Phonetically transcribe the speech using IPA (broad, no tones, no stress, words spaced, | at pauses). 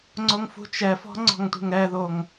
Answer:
ŋ͡ǀoŋfṳt͡ʃɛfɔ̤ ŋ͡ǀɔ̤ŋtʷe̤ŋɾɛðoŋ